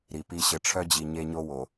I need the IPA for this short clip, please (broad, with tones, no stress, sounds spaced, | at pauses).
ɾ i˨ p i˦ ɕ ɘ˨ ʈ͡ʂʰ œ˦ d͡ʑ i˨ ɲ e˦ ɲ o˦ w o˨